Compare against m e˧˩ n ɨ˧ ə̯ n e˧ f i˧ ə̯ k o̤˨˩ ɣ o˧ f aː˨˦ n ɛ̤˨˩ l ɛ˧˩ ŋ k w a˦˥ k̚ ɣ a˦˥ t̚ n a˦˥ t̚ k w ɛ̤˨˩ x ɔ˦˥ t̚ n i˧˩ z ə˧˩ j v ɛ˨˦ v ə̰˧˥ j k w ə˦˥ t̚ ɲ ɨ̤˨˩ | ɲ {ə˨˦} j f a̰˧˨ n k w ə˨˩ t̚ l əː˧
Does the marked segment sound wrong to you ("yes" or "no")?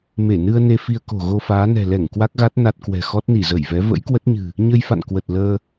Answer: yes